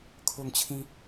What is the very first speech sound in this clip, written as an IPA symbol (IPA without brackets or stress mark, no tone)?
kʰ